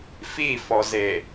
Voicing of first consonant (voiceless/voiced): voiceless